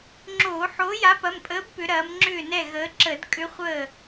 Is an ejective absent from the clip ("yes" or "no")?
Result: no